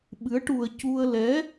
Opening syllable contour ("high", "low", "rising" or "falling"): rising